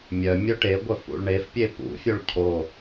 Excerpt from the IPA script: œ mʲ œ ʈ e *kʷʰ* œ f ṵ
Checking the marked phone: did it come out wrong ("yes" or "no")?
yes